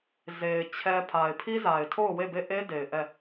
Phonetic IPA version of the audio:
z e˨ ɪ̯ t͡ɕʰ ɛ˦ pʰ a˨ ɪ̯ pʰ i˦ z a˨ ɪ̯ tʰ o˦˨ ʊ̯ w e˦˨ b e˦˨ ʔ e˦ d e˨ ɪ̯ ʔ ɛ˦˨

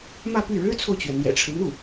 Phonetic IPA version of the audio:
m ä˥˧ p y˥˩ ɻ ɻ̩˥ t͡sʰ o˨ ʊ̯ t͡ɕ ɥ ɛ˩ n̪ j ɛ̰˨˩ ʈ͡ʂʰ ɻ̩˦ n̪ u˥˩

